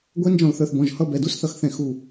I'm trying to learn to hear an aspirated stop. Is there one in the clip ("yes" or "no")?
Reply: no